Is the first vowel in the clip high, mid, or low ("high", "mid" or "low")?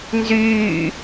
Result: high